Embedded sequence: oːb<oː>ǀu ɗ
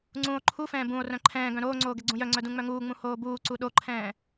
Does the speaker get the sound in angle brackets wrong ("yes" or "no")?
yes